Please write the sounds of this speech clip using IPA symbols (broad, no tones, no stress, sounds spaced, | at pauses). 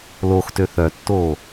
l o x t ø θ œ tː oː